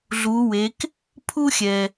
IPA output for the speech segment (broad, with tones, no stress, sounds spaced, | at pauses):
ɮ u˩˧ w e˩˧ k | pʰ u˥ xʲ ɛ˩